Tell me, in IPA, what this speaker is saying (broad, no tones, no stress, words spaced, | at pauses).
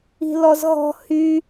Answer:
i̤lɔzɣɔ̤ hy